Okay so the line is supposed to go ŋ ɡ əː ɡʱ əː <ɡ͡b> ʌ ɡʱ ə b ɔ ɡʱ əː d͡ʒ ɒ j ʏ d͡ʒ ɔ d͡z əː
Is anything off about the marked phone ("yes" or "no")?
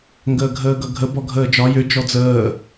yes